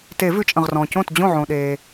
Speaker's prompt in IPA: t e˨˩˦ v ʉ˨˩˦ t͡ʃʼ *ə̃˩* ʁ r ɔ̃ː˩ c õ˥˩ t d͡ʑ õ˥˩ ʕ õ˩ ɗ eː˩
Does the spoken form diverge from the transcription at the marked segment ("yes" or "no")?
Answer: no